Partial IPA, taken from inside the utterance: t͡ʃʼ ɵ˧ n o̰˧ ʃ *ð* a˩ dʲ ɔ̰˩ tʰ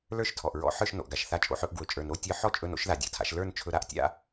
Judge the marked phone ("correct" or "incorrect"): correct